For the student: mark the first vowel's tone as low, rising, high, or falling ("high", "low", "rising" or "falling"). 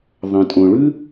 low